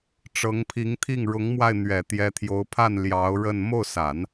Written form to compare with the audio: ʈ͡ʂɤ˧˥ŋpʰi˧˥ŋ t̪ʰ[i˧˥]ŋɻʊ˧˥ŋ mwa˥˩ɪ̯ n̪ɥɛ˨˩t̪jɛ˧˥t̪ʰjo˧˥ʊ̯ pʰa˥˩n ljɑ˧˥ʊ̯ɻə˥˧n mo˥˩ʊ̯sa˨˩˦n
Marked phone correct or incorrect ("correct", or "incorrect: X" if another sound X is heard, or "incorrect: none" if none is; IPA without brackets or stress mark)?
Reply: incorrect: i˥˩